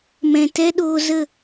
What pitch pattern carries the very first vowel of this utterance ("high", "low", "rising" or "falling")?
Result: low